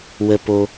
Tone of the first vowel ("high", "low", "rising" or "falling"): low